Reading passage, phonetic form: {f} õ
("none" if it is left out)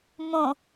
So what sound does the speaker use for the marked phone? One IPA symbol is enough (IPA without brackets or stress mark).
m